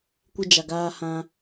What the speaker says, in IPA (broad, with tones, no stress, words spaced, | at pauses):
kʷɪ˦d͡ʒa˨ɡaː˦ hã˦